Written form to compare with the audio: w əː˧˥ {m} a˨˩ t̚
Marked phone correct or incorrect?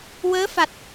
incorrect